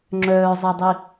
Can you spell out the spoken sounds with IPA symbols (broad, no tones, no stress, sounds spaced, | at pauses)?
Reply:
ŋ͡ǁ œː zˤ ɜ dˤ i